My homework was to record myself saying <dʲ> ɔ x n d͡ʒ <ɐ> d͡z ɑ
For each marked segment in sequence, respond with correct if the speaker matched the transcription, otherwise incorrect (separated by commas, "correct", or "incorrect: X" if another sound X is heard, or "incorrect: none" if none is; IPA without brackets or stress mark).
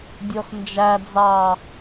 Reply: correct, incorrect: æ